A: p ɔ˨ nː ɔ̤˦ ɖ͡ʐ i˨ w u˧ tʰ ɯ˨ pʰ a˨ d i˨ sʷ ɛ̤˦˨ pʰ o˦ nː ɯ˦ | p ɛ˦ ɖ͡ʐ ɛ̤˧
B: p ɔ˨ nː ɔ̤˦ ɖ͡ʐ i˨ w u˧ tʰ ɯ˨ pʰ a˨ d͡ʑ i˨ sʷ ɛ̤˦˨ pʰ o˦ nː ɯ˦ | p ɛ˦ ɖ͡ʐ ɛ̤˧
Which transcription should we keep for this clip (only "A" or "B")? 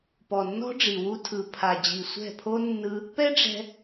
B